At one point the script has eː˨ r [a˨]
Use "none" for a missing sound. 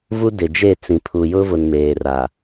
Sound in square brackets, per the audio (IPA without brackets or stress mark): a˨